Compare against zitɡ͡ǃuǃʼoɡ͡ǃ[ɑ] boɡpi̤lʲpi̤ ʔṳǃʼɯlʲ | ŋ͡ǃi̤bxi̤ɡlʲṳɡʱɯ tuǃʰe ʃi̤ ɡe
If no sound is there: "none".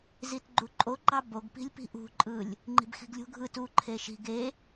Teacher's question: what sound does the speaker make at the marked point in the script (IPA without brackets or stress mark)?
ɑ